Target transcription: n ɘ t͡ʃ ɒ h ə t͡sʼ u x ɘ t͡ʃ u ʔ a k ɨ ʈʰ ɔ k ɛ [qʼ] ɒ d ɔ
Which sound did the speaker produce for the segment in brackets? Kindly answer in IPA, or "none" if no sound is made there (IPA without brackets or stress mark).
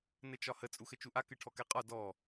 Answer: qʼ